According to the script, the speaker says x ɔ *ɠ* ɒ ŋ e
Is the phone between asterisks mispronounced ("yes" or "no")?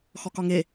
yes